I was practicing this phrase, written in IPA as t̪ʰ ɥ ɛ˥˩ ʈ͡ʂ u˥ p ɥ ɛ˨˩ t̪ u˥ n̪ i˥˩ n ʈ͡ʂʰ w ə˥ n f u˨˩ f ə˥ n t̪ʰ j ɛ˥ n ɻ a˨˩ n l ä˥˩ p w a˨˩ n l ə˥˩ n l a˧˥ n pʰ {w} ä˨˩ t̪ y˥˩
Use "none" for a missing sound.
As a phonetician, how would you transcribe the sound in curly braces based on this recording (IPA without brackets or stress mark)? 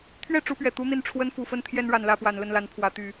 w